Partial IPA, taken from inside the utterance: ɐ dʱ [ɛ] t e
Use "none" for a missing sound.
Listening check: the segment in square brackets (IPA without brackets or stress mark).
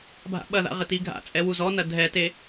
ɛ